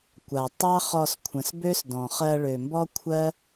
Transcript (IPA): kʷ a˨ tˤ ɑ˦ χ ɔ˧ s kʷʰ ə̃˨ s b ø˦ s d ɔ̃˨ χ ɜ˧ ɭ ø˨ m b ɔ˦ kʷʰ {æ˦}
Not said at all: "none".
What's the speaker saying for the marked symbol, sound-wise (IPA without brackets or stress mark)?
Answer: ɜ˦